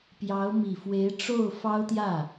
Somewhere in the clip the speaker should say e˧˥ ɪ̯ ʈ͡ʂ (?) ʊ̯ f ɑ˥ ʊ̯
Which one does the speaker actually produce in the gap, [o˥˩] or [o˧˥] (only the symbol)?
o˥˩